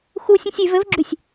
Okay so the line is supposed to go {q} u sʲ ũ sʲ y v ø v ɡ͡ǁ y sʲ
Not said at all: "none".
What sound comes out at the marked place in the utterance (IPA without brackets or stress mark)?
x